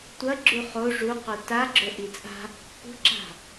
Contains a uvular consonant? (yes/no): yes